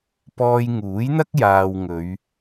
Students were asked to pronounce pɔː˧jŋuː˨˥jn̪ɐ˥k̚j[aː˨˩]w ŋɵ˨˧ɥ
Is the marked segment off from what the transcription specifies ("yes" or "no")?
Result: yes